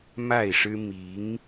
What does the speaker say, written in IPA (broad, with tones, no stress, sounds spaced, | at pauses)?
m a˥˩ ɪ̯ ʂ ɻ̩˥ m i˧˥ ŋ